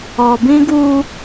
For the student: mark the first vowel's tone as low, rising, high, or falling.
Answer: low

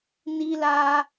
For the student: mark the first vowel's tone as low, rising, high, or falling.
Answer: high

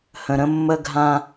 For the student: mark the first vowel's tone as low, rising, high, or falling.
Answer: low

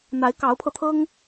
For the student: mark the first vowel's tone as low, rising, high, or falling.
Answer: rising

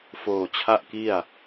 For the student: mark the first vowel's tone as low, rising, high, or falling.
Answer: low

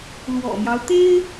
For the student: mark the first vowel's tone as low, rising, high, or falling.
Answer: low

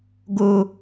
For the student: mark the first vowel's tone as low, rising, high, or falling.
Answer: high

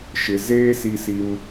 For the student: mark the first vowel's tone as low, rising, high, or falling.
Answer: low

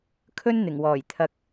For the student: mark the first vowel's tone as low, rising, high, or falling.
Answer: high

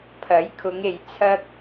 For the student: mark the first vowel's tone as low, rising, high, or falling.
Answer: rising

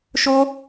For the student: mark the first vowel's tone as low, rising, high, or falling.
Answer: high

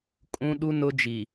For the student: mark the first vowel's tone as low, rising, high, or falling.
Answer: high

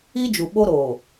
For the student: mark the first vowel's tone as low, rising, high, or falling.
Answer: high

